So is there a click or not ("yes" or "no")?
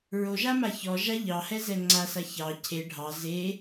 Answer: yes